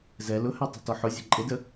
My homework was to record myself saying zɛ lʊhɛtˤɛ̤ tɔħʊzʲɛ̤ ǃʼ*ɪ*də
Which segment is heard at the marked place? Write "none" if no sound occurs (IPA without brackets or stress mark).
ɪ